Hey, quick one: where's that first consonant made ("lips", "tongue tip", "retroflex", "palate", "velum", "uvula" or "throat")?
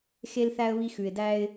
velum